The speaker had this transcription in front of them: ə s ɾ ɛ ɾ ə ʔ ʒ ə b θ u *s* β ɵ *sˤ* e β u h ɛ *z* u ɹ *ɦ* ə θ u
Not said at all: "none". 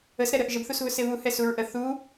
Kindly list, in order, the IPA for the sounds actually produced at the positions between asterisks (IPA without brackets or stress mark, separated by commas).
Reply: s, s, s, ʔ